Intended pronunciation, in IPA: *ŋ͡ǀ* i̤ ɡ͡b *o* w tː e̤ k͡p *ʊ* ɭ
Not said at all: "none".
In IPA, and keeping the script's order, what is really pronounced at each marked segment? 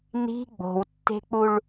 n, o̤, u

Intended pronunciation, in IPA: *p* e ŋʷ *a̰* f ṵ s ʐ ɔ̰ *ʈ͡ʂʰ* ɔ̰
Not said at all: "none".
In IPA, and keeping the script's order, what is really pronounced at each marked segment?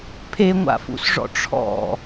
pʰ, a̰, ʈ͡ʂʰ

